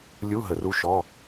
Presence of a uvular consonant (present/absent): absent